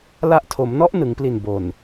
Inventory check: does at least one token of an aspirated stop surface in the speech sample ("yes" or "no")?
yes